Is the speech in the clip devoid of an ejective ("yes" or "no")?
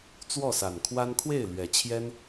yes